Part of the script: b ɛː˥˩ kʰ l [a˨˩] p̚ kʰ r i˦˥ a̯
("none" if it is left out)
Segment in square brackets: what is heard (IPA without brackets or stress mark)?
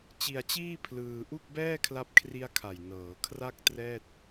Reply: a˦˥